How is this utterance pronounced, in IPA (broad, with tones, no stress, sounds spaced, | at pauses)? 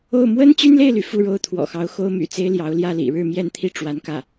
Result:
o˥˩ ʊ̯ m w ə˥ n t͡ɕ y˥ n l e˥˩ ɪ̯ l y˩ f u˥˧ ɻ o˥˩ ʊ̯ t̪ʰ w ɔ̰˨˩ x ɑ˧˥ ʊ̯ x o˥ ʊ̯ m y̰˨˩ t͡s e˥ ɪ̯ l j ɑ˧˥ ʊ̯ l j ä˥˩ l ḭ˨˩ ɻ ɻ̩˥˧ m j ɛ˥˧ n t̪ʰ i˥˩ ʈ͡ʂ w a˧˥ n k ä˥˩